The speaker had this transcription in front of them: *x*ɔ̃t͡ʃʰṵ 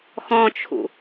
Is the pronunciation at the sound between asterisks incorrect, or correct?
correct